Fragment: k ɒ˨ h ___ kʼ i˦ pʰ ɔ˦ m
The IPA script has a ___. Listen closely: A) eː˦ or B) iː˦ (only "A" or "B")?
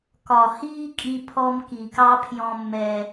B